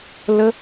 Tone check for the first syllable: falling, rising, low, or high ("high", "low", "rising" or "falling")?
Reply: high